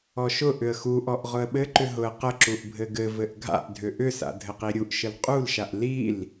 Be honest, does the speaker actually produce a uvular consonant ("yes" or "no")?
yes